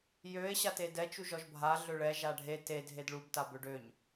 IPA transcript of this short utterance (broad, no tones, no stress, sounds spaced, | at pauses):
j ø e̯ ɕ a t e d ɛ t͡ʃ u ʒ ɔ ʒ bʱ a ɮ ø ɭ ɛ ʒ a ɖʱ e t e dʱ e d ɭ u b t a b ø ɖ ø ɲ